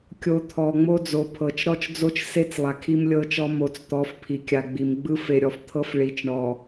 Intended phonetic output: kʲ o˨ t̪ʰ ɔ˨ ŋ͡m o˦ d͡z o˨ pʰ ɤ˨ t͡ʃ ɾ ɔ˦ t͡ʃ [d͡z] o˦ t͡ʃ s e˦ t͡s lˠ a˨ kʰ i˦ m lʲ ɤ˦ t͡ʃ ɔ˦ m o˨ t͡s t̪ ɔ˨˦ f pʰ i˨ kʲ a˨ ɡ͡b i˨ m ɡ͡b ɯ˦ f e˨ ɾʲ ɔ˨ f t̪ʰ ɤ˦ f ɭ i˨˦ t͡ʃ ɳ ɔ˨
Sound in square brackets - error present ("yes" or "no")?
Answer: no